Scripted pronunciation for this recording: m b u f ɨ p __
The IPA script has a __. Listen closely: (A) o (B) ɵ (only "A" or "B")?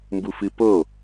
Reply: A